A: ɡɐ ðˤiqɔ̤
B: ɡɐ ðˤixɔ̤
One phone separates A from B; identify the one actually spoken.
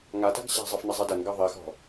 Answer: B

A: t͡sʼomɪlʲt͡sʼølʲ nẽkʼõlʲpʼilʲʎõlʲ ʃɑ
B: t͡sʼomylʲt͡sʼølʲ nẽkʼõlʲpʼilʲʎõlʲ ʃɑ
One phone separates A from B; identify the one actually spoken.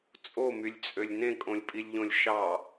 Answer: B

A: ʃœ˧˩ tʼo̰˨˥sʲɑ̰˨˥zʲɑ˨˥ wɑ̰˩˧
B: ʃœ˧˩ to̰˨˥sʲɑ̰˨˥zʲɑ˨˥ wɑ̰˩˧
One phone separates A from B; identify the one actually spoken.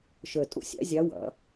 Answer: A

